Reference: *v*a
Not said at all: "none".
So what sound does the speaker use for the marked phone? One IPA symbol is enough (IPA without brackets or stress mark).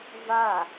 v